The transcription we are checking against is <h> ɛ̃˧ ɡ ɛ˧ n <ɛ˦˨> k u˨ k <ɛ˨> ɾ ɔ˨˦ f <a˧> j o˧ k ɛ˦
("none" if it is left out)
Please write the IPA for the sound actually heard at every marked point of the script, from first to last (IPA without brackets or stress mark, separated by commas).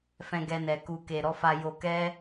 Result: f, ɛ˨, e˨, a˧